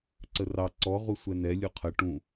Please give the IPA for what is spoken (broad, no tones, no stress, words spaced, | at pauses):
ǀərɑ ǀɔ ʁusʷɛnɛ lʲuqʰə ʈũ